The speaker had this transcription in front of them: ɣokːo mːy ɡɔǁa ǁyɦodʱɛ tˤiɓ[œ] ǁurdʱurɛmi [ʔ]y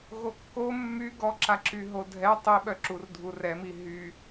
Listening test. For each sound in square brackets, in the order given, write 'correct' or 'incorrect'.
correct, incorrect: ɦ

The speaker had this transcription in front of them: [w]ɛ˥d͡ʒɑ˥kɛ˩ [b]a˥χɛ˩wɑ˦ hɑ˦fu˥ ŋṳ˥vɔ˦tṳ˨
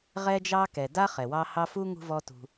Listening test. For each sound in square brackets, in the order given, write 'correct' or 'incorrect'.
incorrect: ʁ, incorrect: d

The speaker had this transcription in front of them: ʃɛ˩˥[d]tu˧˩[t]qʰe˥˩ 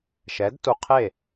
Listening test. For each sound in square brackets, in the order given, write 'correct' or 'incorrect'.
correct, incorrect: none

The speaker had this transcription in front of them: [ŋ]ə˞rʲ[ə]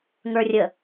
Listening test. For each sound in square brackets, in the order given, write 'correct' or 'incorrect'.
correct, correct

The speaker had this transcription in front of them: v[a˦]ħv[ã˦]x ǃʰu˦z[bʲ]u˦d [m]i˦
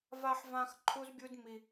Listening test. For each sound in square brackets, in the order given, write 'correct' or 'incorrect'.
correct, correct, correct, correct

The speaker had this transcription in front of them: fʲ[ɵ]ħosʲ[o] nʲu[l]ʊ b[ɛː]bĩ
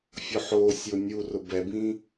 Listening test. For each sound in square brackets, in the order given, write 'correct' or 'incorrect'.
incorrect: ʊ, correct, incorrect: r, incorrect: ɛ

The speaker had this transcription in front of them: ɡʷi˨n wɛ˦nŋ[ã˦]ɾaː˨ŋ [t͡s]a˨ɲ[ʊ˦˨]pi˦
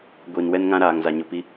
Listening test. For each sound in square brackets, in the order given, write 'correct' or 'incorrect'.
correct, incorrect: z, incorrect: ʊ˨

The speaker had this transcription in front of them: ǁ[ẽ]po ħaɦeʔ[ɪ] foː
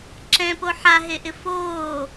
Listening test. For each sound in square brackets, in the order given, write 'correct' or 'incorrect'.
incorrect: ɛ̃, correct

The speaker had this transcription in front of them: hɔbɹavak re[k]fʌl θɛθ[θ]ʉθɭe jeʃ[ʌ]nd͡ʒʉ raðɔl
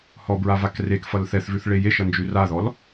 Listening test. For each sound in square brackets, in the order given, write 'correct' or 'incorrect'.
correct, incorrect: v, correct

